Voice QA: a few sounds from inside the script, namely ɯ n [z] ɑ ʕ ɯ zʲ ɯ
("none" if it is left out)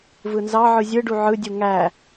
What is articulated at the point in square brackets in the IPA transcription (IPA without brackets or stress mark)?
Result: z